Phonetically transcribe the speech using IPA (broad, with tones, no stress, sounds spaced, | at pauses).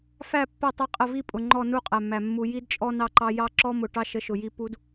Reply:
f æ˦˨ pː ə˦˨ tˤ ɛ˦ qʼ ə˦˨ v i˦ pʼ ʊ˨ ŋ͡ǃ ɔ˦˨ n u˦ qʼ æ˨ mː æ˨ mː u˨ j i˦ d t͡ʃʼ ɔ˦ n ɑ˦ ǃ ɑ˦ j ɑ˦ ǁ ɔ˦ m ʊ˨ ʈ ɑ˦ ʃ ə˨˦ ʃ ʊ˨ j i˦ p u˦ d